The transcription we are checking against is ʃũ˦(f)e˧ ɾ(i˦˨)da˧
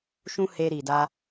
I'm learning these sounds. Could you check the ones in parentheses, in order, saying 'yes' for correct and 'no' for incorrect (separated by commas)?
no, no